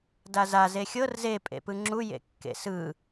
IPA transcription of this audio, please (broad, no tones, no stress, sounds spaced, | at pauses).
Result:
d a z a z e xʲ ɤ r z e pʼ ḛ p ɯ ŋ͡ǁ u j ḛ kː ḛ s ɯ